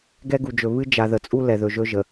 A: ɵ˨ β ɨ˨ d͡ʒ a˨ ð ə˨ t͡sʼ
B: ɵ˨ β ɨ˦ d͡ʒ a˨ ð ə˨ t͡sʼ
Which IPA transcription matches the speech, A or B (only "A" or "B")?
B